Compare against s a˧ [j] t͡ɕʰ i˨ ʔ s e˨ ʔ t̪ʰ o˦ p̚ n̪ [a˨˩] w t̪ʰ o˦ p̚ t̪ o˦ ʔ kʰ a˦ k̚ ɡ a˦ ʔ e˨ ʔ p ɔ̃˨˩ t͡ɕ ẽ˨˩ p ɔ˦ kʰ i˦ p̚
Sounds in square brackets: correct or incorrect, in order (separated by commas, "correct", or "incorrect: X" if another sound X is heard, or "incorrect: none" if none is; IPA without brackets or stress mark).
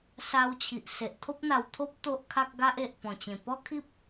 incorrect: w, correct